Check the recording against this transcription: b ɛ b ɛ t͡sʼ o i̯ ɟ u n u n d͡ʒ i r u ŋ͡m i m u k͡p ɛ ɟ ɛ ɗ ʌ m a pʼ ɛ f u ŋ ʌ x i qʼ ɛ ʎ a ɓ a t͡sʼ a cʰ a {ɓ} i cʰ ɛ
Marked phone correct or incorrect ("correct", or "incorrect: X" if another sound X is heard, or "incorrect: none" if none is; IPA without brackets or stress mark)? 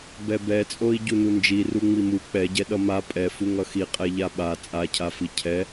incorrect: f